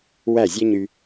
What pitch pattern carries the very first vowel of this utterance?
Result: falling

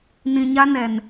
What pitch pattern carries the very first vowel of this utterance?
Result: low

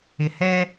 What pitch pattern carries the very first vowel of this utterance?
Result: low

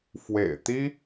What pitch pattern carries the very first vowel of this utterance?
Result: low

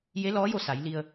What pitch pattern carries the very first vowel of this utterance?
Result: rising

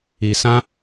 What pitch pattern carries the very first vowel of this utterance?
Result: low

